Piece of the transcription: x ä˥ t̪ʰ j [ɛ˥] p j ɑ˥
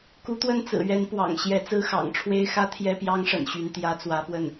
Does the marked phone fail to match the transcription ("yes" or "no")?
no